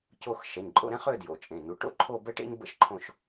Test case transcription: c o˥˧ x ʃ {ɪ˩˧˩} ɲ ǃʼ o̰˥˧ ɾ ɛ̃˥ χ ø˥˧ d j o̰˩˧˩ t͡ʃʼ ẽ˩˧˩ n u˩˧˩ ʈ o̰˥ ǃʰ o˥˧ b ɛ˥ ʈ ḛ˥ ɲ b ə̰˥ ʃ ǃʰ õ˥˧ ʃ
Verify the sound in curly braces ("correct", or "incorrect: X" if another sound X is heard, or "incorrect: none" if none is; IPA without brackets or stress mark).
incorrect: ɛ˩˧˩